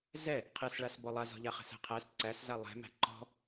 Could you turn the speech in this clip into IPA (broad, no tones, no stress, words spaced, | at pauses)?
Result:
zɛ | qʰɛsɭas bɔlˠazɔ̤ʎa χɛ̤sæ̤qʰæs ǀæsza lˠɛ̤mæ̤ ǃɔ̤